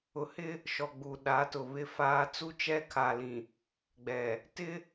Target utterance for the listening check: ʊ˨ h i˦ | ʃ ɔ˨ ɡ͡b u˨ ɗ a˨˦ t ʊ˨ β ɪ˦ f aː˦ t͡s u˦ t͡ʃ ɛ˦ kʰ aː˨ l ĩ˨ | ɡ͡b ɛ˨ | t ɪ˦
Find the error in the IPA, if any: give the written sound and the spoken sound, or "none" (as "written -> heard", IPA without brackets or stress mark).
i˦ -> ɪ˦